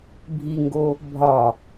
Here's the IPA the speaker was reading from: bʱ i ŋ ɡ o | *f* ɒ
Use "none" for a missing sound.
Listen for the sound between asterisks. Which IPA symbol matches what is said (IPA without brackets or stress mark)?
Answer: bʱ